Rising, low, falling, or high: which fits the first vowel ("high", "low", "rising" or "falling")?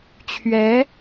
rising